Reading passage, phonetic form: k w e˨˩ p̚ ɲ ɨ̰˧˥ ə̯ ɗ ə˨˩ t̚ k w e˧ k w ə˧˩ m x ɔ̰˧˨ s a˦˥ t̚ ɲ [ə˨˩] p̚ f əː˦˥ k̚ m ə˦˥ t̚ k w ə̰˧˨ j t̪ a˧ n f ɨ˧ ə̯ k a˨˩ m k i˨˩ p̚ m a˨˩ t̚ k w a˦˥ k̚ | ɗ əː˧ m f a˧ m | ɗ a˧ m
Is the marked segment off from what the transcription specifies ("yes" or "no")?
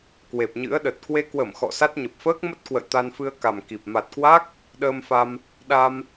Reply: no